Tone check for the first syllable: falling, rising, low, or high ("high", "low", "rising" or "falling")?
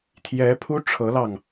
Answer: rising